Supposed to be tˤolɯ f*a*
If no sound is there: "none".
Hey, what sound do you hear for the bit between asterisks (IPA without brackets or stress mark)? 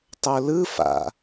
a̰